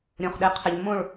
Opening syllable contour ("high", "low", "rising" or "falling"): low